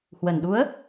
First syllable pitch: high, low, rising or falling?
low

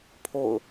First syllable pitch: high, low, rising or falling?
falling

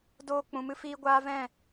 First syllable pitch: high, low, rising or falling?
high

